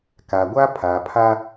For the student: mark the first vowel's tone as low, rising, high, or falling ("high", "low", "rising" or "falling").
low